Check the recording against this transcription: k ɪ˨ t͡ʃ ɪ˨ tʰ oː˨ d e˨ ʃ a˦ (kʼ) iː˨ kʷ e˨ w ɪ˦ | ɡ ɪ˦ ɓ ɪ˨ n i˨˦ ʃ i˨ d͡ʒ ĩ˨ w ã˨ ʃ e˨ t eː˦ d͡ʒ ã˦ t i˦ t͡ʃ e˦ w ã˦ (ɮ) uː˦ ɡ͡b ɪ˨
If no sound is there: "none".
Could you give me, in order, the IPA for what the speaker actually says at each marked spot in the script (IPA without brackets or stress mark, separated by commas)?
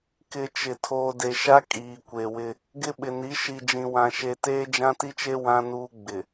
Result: kʼ, n